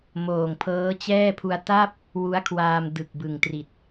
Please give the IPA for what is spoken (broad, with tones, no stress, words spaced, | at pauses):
moː˨˩ŋpʰɤː˦˥t͡ɕɛː˥˩pʰu˧a̯ ta˥˩p̚ | wu˦˥a̯kʰwaː˧mdɯ˨˩k̚ bɯ˨˩ŋtri˨˩t̚